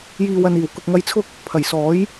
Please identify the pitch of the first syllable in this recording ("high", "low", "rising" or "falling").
low